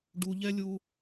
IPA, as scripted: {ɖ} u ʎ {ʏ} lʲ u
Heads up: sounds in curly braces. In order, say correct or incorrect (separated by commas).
correct, incorrect